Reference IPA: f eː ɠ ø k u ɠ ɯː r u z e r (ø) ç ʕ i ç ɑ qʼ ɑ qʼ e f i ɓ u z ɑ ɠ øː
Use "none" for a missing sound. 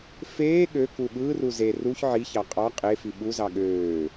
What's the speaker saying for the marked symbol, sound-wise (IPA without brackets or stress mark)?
u